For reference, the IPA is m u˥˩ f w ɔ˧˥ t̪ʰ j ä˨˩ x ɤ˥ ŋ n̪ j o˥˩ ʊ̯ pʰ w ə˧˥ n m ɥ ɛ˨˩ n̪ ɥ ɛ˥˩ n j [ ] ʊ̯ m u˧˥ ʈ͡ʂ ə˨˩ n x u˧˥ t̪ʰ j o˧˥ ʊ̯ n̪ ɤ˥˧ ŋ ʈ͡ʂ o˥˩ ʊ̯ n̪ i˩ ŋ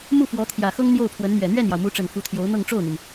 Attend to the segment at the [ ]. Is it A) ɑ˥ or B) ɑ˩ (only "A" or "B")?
B